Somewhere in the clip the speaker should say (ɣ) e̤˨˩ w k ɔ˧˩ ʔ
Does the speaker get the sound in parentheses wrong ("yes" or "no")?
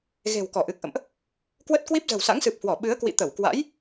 no